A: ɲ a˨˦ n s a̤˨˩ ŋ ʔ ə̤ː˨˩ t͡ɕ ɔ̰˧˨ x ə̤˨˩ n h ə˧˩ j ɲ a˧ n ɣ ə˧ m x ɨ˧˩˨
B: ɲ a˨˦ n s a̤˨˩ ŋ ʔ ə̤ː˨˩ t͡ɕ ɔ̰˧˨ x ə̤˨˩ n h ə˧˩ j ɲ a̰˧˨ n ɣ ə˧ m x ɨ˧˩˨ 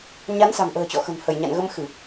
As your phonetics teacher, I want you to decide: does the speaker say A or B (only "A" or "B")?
B